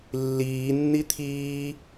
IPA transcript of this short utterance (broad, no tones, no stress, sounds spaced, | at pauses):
lː iː nː i t̪ʰ iː